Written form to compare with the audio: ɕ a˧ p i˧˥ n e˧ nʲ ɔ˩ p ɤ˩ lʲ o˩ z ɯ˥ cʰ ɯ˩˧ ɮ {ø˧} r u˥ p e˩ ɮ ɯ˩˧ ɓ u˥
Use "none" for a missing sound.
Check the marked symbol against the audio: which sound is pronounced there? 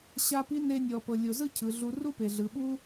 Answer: u˧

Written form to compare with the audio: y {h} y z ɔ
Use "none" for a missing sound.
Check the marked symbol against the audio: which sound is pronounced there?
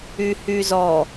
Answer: h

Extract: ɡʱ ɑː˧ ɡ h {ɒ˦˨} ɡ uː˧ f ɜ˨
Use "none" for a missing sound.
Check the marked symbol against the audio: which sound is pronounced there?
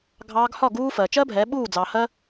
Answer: ɒ˦˨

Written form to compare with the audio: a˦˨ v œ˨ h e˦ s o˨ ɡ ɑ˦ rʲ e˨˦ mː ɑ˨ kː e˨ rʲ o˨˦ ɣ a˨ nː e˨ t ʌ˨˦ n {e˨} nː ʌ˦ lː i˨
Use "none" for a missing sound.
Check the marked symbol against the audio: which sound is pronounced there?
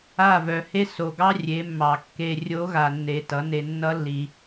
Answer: e˨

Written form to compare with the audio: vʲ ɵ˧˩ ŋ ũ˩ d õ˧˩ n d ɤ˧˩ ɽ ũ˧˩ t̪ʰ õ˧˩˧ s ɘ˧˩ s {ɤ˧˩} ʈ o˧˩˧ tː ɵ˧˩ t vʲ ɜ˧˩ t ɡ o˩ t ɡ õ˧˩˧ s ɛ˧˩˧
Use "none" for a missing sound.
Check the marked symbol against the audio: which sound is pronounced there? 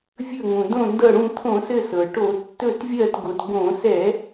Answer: ɤ˩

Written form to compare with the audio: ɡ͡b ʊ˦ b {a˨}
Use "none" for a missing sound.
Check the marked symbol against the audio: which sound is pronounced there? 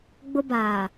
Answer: aː˨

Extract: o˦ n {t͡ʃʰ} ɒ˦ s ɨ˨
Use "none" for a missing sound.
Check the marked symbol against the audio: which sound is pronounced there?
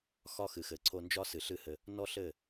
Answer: d͡ʒ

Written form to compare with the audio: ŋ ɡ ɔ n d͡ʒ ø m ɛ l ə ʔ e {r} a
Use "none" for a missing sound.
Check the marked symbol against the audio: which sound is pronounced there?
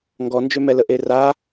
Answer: r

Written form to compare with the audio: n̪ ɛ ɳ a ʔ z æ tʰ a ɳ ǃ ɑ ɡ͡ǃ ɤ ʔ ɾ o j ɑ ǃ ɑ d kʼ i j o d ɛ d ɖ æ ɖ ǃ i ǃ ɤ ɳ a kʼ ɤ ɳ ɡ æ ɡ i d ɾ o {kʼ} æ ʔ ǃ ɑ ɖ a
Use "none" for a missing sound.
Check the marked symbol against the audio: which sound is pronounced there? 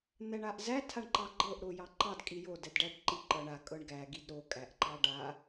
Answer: kʼ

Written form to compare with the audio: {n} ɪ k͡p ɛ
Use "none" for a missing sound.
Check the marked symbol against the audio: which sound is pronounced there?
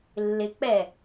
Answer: lː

